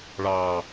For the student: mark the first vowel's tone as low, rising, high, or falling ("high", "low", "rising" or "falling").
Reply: low